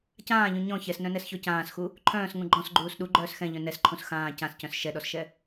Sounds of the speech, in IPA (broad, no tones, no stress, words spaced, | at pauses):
cãːʎũ ɲɔ̃ çɛsnœ̃nɛsçɔ cãːsxu | ǃʰœ̃ːsŋũ ɡ͡ǃɔ̃sɡ͡ǃuːs ɗuɡ͡ǃœːs xɛ̃ʎœ̃ nɛsǃʰũs xãː cãscœ̃s ʃɛɗɔsʃɛ